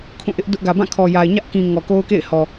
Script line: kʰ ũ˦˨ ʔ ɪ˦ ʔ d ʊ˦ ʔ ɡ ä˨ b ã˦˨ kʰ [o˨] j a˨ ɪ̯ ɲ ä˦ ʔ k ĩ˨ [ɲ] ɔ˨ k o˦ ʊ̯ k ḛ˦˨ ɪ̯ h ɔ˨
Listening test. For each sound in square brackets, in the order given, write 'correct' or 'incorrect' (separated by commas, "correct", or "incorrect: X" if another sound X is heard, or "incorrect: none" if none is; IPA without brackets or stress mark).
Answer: incorrect: ɔ˨, incorrect: ŋ